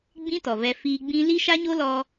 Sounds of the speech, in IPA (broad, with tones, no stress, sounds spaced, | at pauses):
ɡ͡b ĩ˦ t ɔ˨ v ɛ˧ f iː˧ ɡ͡b ĩ˦ l i˦ ʃ a˦ ɲ o˦ l ɔ˧